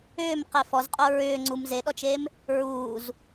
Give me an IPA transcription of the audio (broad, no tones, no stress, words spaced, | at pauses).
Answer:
ʏːmqe fɔzqʼo ɹʏː ŋ͡ǀum zeɗɔt͡ʃem | ɹuːz